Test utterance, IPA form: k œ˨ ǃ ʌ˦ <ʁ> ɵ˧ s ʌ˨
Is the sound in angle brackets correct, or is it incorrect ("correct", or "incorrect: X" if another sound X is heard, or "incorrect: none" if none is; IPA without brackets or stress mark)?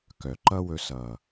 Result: incorrect: w